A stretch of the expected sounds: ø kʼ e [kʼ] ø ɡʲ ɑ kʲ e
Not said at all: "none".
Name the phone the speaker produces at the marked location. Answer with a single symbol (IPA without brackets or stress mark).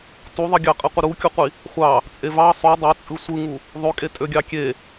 tʼ